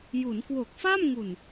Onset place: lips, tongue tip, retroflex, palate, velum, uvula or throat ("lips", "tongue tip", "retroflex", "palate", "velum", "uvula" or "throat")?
palate